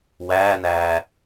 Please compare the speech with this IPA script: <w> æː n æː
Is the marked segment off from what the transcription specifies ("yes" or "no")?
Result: no